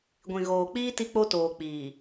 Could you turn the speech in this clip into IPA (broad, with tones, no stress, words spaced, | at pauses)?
ɡʷĩ˨ɣoː˨k͡piː˦ ti˦k͡po˦toː˨ k͡piː˨